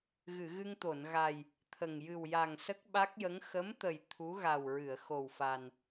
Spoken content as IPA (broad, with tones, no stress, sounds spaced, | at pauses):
ɣ ɨ˨˩˨ ɣ ɨ˧ ŋ t̪ o˨˩˨ n ɣ a˨˩ j | t̪ʰ ə˨˩ ŋ j ɨ˨˩ w j a˨˩ ŋ s ə˦˥ k̚ ɓ a˦˥ k̚ j ə˧˥ ŋ x ə˧˥ m t̪ ə˨˩ j t̪ʰ u˧˥ ɣ a˨˩ w ɹ ɨ˨˩˨ ə̯ x o˨˩ w f a˨˩ n